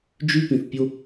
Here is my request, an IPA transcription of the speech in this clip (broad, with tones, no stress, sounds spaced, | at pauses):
d͡ʒ y˦ p ĩ˨ θ pʲ o˧